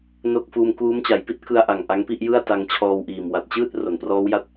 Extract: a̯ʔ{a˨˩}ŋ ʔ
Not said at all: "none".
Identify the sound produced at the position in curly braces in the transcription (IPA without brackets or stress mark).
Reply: a˨˩